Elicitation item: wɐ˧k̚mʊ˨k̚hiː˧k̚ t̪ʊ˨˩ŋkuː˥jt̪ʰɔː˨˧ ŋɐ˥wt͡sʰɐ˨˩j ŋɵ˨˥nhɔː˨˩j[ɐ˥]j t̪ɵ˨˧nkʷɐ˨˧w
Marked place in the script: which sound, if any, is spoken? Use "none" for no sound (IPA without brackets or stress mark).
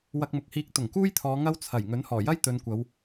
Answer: ɐ˥